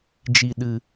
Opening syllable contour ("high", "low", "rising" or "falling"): low